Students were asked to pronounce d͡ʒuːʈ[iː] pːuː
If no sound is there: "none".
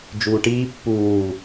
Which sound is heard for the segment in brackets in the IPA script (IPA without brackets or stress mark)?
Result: iː